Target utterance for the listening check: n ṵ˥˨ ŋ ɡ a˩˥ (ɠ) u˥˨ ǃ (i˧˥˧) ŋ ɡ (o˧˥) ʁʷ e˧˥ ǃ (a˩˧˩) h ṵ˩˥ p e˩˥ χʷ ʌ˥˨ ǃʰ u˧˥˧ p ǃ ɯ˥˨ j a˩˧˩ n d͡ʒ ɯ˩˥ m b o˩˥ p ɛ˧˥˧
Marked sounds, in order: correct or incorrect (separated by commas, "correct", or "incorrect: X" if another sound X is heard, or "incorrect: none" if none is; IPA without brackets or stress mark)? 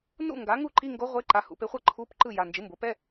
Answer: incorrect: ŋ, correct, correct, correct